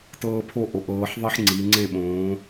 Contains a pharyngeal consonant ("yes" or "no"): yes